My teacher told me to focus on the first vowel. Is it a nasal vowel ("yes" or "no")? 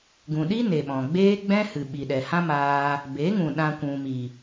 yes